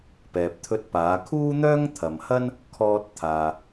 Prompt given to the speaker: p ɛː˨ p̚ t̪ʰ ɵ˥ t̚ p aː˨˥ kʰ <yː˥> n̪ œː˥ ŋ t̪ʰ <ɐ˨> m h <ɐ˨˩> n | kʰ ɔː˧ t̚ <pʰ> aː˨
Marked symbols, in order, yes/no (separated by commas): no, yes, no, no